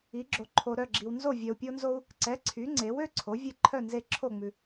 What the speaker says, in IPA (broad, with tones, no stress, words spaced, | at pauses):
i˩˥ɡ͡ǁo˨ ǃʰo˨ɾœ˥˨ɡ͡ǁi˨wnzo˥˨ vʲœ˨u̯pʲo˦nzo˦u̯ | ǀɛ˩˥ ǀʰy˩˥ŋ͡ǀe˩˥w ø˦ ǀʰo˩˥vʲe˥˨ ǃʰœ˥˨nze˥˨ ǁʰo˥˨ŋ͡mʉ˨